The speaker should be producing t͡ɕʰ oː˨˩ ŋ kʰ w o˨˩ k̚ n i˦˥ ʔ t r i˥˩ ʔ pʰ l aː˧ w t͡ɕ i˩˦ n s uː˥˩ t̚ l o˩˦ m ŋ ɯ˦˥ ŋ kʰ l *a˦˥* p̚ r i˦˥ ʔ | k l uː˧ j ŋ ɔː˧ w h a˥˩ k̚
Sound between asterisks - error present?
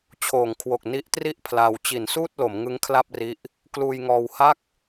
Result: yes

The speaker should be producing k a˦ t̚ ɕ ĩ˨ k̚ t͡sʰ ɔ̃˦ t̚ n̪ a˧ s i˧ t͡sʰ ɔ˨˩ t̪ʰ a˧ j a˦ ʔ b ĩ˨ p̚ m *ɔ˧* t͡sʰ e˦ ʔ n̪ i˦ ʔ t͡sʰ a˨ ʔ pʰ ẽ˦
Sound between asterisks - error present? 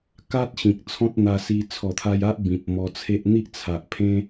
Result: no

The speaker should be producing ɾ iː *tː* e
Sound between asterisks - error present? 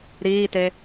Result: yes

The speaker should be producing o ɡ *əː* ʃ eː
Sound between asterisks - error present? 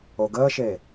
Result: no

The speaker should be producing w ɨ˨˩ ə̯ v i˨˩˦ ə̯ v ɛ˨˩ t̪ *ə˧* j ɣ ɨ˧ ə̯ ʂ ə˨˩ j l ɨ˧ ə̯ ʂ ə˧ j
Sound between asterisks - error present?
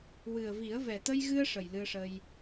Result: no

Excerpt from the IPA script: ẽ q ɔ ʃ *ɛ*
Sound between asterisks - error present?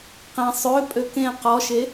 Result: yes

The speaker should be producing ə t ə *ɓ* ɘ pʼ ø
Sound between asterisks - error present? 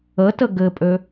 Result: yes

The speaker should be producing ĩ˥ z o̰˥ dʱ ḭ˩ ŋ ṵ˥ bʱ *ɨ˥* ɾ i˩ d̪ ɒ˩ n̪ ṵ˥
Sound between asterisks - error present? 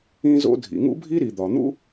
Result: yes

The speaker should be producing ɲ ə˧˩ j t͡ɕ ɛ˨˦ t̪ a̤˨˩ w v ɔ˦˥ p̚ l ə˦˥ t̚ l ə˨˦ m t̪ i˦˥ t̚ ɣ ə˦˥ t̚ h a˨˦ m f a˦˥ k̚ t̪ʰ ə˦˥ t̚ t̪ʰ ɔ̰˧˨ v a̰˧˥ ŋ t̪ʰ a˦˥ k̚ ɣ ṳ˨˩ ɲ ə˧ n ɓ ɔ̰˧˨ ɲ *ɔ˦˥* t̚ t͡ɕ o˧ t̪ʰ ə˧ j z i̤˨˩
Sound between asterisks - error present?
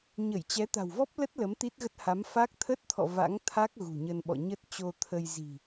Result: yes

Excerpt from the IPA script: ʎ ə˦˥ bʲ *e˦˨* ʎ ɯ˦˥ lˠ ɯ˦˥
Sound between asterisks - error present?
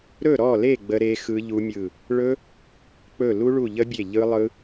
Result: no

